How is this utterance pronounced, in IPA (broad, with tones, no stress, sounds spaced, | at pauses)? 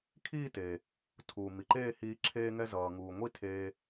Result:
kʰ iː˥˧ t eː˩ | tʰ uː˩ m i˩ ǃ eː˥˧ h iː˧ ǁʰ eː˧ ŋ ɛ˧ z ʌː˩ ŋ uː˩ ŋʷ i˥˧ tʰ eː˧